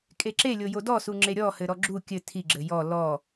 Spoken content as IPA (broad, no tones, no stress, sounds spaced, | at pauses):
kʼ e ǁ e lʲ o j o d ɔ s u ŋ͡ǁ e ɾʲ ɔ h ɘ ɾ ɔ ɡ͡ǁ u kʲ ɘ tʰ i ɡ͡ǁ ɘ j ɔ l ɔ